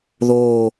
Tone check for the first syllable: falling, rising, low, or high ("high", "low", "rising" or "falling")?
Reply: low